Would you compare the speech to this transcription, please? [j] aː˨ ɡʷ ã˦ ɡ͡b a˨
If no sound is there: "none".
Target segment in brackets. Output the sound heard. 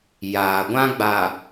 j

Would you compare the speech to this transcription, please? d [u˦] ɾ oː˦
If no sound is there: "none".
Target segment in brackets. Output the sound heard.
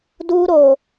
uː˦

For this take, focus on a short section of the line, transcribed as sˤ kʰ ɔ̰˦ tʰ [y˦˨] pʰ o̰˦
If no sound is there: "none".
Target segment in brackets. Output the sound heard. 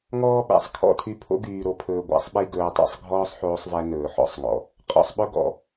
y˧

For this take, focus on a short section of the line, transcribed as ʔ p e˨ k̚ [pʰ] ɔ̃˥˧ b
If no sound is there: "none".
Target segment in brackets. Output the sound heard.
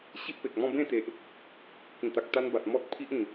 m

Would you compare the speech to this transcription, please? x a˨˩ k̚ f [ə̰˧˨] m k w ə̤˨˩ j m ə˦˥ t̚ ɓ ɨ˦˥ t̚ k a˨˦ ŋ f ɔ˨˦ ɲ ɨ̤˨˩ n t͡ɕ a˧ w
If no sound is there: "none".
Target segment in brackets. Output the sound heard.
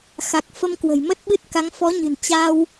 ə˧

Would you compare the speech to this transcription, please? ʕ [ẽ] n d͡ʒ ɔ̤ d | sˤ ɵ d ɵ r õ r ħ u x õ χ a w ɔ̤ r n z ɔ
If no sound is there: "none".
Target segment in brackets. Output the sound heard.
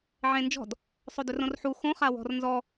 ẽ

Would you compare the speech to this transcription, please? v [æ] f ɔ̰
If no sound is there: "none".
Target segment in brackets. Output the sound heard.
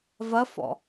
ɐ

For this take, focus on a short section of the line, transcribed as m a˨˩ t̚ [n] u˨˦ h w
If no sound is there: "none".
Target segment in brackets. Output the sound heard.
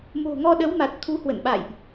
t̪ʰ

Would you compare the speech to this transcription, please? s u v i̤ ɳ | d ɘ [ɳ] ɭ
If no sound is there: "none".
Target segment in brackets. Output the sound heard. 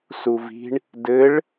none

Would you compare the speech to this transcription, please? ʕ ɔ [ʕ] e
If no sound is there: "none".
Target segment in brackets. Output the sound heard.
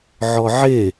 ʕ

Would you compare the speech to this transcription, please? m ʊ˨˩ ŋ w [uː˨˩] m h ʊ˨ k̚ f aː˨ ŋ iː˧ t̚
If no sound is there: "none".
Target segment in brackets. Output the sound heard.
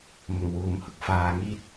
uː˨˩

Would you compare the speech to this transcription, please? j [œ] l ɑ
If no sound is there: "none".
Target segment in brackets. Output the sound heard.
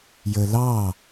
ə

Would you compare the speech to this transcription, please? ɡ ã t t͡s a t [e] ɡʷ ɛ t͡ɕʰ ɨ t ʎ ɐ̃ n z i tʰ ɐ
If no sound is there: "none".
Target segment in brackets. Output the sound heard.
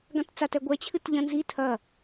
ɛ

